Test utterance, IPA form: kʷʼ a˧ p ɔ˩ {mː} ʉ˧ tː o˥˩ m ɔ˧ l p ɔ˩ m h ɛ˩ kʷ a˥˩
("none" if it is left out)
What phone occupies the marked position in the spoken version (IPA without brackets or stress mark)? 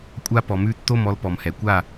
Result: m